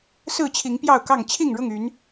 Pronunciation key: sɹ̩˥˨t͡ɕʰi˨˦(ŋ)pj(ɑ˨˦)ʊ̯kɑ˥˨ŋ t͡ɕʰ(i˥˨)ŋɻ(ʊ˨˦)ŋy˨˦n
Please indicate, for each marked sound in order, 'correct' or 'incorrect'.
correct, incorrect, correct, incorrect

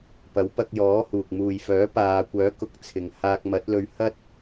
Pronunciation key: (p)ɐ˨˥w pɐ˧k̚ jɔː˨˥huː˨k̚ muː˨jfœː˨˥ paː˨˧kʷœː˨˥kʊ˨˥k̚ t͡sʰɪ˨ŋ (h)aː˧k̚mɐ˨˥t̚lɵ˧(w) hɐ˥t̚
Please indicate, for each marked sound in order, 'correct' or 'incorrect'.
correct, correct, incorrect

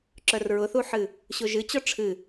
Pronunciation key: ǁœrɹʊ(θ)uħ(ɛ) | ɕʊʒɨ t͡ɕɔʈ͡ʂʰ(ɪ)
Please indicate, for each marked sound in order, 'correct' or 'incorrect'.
correct, incorrect, incorrect

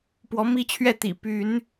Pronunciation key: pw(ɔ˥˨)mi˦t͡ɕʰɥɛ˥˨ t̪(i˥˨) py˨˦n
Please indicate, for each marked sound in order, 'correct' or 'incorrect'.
incorrect, incorrect

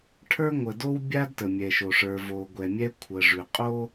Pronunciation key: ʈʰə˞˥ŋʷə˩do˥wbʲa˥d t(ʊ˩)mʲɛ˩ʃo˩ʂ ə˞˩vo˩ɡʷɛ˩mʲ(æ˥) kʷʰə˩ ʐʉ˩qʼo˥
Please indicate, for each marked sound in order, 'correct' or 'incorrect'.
incorrect, incorrect

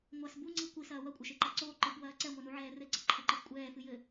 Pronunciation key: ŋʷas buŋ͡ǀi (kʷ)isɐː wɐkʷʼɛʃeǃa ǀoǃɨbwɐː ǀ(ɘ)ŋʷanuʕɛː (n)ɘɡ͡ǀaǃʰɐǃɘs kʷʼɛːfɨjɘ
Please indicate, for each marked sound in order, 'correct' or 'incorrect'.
correct, incorrect, incorrect

